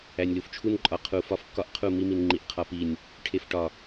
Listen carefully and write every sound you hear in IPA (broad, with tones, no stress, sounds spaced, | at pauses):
æ˨ nʲ l u˨ f t͡ʃʰ u˦ n ǃʼ ɒ˨ qʰ u˨ f ɒ˨ f kː ɒ˨ ʔ qʰ u˦˨ m i˦ m i˨ n ŋ͡ǃ i˨ ʔ qʰ ɒ˦ p i˦˨ nʲ | ʈʰ e˨ f ʈ ɒ˨